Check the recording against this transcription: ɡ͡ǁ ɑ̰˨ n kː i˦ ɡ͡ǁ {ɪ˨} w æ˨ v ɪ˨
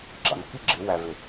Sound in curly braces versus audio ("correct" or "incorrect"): incorrect